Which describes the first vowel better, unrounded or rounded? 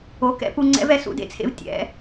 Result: rounded